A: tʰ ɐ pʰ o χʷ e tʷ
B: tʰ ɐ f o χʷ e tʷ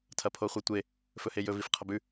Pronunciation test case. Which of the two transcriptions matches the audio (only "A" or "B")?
A